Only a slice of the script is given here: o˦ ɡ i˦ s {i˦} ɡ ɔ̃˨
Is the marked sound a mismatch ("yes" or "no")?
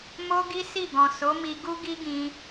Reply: yes